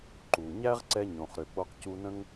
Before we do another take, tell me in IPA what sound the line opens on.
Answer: ǃ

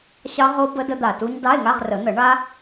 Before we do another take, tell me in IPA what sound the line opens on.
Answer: ɕ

